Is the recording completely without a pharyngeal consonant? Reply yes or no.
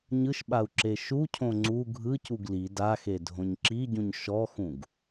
yes